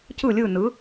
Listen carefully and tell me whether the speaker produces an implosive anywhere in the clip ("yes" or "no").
no